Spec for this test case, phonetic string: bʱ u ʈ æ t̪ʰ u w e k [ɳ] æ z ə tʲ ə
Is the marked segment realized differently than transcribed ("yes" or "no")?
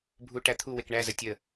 no